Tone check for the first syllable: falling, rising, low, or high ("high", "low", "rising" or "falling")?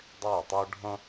falling